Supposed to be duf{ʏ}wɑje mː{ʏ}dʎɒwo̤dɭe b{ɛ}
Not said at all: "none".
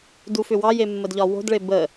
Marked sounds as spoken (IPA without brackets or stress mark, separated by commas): ʏ, ə, ə